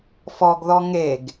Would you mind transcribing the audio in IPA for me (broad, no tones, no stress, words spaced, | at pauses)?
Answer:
fɔɡðɔ ŋeɡ